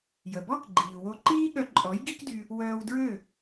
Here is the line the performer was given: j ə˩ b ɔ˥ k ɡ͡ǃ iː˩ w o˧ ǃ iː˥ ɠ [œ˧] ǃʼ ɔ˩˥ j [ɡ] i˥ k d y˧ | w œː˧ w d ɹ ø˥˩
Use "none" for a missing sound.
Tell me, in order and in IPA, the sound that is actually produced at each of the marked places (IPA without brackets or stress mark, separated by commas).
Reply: œ˧, ɡ